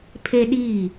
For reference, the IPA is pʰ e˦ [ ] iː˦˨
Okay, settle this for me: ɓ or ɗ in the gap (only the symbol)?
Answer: ɗ